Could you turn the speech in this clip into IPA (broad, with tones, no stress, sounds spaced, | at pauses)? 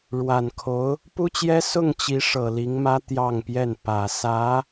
ɻ w a˨˩ n kʰ o˧˥ ʊ̯ | p u˥ t͡ɕ j ɛ˥ s ʊ˥˩ ŋ t͡ɕ i˧˥ ʂ ɤ˨˩ l i˧˥ ŋ m ä˥ t̪ j ɑ˥˧ ŋ p j ɛ˥˩ n p ä˨˩ s ä˧˥